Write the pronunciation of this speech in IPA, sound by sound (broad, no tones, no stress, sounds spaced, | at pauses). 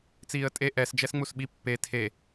t͡s iː ə̯ tʼ e ʔ ɛ s d͡ʒ ɛ s ŋ͡m u s ɓ i pː e tʰ e